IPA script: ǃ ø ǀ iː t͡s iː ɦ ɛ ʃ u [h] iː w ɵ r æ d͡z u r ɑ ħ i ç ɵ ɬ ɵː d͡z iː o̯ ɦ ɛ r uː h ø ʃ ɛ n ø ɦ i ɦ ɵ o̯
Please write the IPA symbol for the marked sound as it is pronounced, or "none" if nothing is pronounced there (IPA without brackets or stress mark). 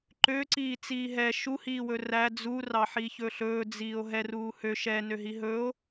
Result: h